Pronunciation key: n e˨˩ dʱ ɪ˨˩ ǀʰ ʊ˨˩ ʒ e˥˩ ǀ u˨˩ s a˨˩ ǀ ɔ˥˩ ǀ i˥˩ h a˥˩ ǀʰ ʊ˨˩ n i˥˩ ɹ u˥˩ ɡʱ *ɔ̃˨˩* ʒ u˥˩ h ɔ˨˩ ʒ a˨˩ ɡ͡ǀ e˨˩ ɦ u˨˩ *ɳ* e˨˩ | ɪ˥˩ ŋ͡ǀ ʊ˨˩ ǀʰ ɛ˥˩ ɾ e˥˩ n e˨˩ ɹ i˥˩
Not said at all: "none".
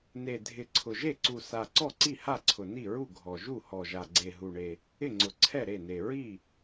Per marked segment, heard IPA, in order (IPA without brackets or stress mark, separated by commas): ɔ˨˩, ɳ